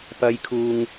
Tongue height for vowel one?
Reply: low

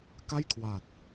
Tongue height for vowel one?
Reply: low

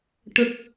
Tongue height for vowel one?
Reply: mid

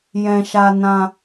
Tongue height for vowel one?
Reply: mid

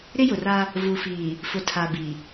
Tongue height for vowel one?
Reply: high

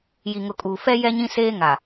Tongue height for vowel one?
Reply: high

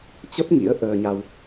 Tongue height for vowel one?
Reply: mid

